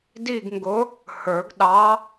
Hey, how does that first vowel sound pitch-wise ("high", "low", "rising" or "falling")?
falling